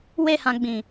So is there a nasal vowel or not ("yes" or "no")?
yes